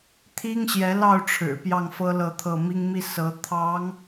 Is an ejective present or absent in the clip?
absent